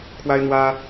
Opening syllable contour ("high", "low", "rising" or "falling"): high